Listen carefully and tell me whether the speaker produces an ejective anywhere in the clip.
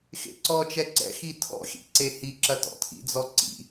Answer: no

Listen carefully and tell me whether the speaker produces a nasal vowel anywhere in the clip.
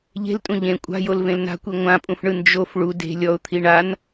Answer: yes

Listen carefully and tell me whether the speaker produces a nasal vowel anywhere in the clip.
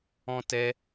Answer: yes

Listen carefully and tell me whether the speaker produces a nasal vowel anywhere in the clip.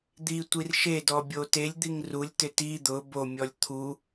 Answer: no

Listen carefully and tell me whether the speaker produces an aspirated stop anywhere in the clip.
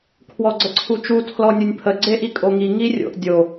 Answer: yes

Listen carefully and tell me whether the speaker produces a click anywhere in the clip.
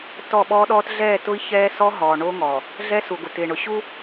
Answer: no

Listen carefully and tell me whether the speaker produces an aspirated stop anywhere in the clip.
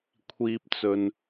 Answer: yes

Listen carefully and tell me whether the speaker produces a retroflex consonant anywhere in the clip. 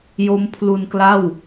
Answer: no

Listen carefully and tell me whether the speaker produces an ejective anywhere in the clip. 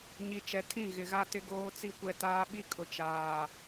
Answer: yes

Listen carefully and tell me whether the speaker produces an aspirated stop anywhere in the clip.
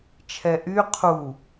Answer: yes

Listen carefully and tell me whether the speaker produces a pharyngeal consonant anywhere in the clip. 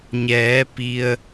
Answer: no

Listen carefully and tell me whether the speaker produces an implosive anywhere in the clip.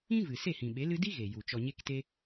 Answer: yes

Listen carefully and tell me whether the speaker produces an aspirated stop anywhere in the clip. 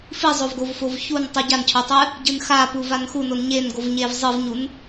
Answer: yes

